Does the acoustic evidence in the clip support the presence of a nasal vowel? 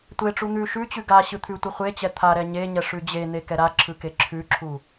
no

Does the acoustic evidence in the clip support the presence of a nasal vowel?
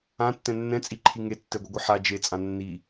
yes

